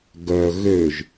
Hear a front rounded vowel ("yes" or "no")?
yes